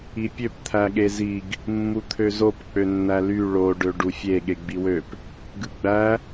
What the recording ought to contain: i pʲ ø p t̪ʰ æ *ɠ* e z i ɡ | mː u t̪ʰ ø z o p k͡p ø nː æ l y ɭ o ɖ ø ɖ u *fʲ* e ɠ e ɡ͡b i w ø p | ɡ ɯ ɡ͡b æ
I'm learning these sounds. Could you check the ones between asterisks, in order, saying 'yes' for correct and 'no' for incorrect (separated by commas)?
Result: yes, yes